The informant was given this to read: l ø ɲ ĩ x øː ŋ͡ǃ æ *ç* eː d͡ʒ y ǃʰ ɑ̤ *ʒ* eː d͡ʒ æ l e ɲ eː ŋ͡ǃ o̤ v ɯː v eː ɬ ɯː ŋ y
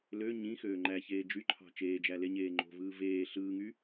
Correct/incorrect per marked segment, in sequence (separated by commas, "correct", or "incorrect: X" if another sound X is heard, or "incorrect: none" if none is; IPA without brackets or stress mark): correct, incorrect: t͡ʃ